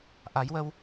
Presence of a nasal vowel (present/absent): absent